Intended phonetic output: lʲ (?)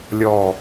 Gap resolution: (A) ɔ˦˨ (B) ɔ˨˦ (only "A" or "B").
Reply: A